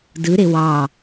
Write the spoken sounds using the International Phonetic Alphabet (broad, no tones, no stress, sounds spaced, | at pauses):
d ɯ ɾ e w ɑ